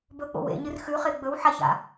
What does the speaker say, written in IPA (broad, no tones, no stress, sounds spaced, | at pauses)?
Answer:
b ɵ k͡p o̰ w ḛ ɲ ɨ r x ʉ χ e ɡ͡b ɵ w ħ a ç a̰